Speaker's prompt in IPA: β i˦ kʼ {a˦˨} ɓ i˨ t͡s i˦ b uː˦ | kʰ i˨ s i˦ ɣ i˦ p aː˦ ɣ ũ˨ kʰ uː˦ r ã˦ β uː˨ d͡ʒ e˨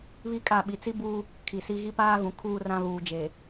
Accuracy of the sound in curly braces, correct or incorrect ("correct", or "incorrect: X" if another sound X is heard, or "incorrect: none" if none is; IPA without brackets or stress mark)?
correct